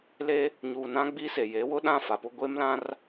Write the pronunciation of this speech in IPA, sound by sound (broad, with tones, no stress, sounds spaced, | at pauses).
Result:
l e˦ | ɲ uː˨ n ã˦ ɡ͡b i˦ s e˨ j e˨˦ w ʊ˦ ɗ ã˦˨ f a˨ p ʊ˦ ɡʷ e˦ m l ã˦ r